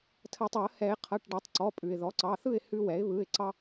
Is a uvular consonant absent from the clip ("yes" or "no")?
no